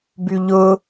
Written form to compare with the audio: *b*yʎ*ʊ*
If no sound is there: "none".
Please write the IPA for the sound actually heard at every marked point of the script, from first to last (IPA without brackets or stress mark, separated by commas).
b, ʊ